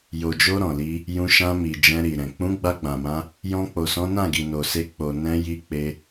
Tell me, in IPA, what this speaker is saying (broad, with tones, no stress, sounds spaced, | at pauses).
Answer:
j o˨ d͡ʒ o˧ ɾ ɔ̃˨ l i˧ | j ũ˧ ʃ ã˧ m i˨ d͡ʒ ɛ̃˧ ɾ i˨ ɾ ɛ̃˨ k͡p ũ˨˦ ɡ͡b a˧ ɡ͡b ã˨ m ã˧ | j ɔ̃˧ k͡p o˨ s ɔ̃˨˦ n ã˦˨ ɡ i˨ n o˨ s e˧ k͡p o˨ n ɛ̃˧ j i˧ k͡p e˧